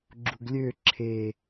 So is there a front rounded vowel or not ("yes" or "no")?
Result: yes